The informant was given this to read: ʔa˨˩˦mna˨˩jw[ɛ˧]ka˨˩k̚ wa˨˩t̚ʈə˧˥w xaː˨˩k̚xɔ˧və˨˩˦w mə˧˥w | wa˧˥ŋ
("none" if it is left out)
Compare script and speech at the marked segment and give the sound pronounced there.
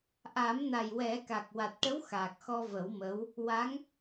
ɛ˨˩˦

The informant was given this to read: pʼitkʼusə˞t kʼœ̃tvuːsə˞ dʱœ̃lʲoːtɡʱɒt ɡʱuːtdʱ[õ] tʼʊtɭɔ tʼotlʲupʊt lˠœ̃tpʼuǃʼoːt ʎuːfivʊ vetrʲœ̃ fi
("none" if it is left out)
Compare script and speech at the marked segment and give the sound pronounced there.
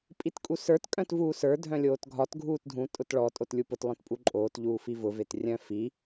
ũ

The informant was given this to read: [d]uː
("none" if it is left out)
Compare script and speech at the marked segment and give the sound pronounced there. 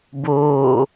b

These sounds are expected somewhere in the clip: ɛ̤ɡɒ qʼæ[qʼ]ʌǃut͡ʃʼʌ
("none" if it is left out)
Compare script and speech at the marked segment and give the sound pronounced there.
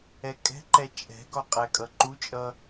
kʼ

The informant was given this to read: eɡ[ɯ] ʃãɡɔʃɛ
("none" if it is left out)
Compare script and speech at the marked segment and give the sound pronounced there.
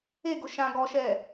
ʊ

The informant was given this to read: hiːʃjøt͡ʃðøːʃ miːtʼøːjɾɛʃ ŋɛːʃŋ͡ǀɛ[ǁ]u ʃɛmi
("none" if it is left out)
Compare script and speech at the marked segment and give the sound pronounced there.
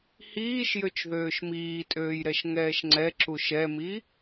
ǁ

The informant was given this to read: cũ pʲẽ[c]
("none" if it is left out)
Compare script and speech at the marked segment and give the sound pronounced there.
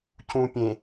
none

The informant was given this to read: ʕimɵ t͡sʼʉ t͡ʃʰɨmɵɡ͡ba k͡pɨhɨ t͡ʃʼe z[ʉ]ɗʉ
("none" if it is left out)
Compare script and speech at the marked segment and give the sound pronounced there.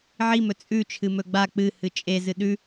ɨ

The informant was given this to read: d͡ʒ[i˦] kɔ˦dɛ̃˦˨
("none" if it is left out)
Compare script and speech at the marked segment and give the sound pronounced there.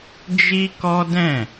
i˦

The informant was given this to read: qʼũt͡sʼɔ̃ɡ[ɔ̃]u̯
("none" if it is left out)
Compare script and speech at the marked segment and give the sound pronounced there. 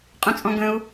ə̃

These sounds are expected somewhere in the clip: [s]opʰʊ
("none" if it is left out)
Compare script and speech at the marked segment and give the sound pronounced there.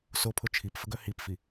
s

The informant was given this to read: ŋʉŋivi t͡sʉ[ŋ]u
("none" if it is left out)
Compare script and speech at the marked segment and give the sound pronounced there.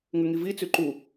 ǃ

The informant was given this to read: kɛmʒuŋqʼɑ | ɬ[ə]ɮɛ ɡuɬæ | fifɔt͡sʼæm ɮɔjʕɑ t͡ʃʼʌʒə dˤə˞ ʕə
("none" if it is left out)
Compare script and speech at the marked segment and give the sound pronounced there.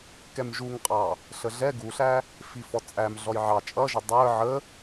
ə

